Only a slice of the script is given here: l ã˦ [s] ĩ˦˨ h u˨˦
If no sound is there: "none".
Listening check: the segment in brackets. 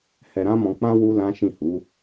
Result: ʃ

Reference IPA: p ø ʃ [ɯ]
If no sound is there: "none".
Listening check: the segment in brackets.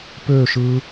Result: ɯ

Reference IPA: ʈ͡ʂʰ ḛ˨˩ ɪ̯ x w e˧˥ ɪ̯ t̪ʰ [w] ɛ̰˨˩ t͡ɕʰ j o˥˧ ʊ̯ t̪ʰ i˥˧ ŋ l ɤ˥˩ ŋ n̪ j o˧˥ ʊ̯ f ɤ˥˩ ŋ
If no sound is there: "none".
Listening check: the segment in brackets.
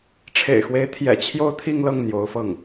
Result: j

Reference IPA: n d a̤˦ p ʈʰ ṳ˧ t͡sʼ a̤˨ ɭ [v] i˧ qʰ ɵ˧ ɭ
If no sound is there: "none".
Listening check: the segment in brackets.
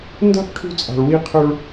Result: w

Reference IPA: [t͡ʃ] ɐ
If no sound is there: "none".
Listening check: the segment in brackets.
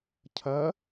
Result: cʰ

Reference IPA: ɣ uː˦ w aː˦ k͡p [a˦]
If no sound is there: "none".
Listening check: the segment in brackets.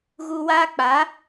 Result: a˨˦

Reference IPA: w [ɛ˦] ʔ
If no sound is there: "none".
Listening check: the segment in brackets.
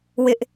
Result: ɪ˦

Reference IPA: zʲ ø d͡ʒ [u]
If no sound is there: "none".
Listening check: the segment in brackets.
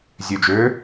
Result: ø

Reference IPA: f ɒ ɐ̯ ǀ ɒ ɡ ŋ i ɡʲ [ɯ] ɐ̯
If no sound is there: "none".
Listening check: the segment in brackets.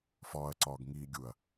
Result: u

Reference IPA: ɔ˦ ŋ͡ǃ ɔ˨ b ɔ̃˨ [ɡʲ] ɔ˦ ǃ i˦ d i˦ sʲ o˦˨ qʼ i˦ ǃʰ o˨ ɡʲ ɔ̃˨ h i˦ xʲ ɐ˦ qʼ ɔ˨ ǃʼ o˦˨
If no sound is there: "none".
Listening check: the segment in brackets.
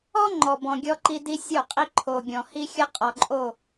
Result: ɡʲ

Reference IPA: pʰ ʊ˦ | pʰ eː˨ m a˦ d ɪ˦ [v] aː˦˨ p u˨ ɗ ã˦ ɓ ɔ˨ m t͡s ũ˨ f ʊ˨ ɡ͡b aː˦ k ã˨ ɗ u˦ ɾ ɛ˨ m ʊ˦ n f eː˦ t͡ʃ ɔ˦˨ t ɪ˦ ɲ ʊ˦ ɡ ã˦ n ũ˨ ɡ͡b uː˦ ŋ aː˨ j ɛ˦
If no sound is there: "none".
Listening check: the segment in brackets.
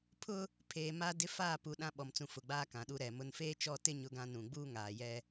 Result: f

